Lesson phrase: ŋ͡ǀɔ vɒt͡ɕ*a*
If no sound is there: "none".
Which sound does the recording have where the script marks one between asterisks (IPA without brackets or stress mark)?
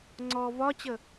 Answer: ə